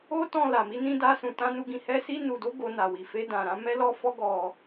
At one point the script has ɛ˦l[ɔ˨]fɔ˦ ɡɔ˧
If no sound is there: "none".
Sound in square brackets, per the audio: ɔ˦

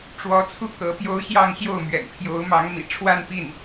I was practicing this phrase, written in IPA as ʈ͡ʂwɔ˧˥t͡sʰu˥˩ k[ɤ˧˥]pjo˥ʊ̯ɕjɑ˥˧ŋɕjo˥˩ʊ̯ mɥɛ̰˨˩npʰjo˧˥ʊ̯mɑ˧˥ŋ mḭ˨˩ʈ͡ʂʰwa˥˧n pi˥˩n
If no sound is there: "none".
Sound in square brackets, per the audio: ɤ˧˥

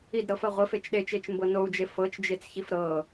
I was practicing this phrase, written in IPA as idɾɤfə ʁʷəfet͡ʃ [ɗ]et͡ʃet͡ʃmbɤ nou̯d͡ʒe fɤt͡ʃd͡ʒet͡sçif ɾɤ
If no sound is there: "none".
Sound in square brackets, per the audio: ɗ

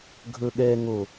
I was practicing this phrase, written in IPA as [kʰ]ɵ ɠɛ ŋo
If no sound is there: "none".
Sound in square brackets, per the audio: ɡʱ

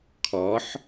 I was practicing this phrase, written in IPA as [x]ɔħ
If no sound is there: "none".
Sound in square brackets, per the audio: kʰ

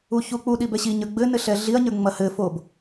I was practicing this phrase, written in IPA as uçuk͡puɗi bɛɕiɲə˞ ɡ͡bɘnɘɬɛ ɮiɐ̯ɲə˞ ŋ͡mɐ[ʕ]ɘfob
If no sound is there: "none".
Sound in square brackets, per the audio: h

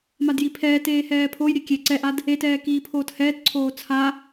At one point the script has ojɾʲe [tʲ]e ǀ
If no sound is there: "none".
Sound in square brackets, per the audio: kʲ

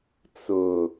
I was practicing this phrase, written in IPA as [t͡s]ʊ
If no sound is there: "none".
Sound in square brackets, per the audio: t͡s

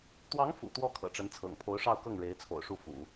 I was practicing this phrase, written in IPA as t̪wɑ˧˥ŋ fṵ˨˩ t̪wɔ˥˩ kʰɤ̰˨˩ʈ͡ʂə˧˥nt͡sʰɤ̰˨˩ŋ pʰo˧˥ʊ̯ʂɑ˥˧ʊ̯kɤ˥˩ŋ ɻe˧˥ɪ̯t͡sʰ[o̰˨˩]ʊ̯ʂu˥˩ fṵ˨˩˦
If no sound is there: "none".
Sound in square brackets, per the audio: o̰˨˩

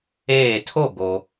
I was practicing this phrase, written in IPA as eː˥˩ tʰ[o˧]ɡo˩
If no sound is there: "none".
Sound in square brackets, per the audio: o˥˩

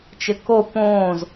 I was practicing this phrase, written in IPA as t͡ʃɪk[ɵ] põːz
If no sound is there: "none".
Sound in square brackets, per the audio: o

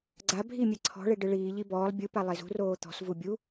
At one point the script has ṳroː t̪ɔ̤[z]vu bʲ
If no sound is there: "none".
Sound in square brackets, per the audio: s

